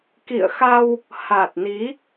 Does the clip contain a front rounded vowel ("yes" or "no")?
no